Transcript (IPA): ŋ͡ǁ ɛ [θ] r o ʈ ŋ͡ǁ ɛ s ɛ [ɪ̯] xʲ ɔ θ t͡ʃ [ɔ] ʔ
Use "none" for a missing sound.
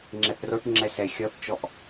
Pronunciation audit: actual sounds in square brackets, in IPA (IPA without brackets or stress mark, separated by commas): θ, ɪ̯, ɔ